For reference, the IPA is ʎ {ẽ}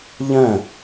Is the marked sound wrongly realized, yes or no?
yes